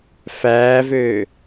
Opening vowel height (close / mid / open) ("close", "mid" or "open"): open